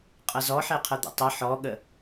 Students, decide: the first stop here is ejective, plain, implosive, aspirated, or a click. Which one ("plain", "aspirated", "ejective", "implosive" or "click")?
ejective